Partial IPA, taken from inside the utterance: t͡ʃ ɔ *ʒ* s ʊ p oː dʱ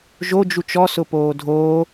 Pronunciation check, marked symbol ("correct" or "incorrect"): incorrect